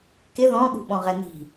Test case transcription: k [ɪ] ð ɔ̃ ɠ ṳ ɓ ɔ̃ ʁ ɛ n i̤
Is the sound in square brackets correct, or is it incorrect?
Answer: correct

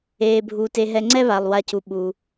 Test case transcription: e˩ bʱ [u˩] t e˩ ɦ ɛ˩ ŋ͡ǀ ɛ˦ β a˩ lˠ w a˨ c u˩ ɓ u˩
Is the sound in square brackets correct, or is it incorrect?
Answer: correct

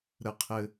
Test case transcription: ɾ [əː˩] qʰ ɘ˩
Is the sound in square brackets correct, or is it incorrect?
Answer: incorrect: ə˩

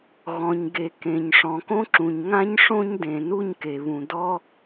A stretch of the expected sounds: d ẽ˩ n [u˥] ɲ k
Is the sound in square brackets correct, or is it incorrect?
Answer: correct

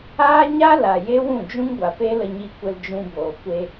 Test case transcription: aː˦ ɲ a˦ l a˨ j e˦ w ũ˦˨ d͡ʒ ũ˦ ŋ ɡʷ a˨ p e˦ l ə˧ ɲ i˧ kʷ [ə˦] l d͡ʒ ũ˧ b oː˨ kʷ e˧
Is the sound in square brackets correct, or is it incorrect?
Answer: incorrect: ə˧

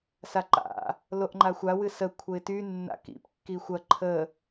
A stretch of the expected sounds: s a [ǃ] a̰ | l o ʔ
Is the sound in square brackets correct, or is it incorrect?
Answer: correct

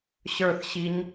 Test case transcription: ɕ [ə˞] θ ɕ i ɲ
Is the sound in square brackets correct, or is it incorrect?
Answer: correct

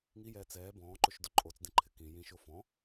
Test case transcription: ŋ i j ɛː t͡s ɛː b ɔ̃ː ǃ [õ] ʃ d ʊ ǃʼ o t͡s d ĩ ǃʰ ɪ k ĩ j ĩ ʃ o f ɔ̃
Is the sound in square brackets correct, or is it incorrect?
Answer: incorrect: o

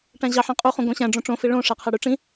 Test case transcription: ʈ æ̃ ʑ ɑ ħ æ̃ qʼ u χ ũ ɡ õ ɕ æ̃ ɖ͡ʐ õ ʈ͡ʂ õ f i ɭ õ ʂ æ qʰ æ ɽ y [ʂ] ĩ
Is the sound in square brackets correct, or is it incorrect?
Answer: incorrect: ʈ͡ʂ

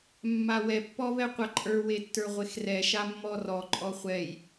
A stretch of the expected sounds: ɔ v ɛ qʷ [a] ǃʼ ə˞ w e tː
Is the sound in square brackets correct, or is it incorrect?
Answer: correct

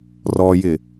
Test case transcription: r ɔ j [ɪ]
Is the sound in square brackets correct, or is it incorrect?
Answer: correct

